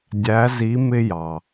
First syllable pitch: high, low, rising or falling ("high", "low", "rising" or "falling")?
rising